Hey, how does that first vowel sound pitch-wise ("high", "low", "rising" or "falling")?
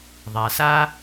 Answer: low